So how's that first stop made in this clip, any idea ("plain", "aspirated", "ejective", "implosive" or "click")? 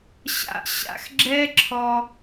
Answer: click